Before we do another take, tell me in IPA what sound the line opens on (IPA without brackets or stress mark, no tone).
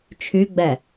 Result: t͡ʃʰ